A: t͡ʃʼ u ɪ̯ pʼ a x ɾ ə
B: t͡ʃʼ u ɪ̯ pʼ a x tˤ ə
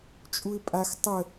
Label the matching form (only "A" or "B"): B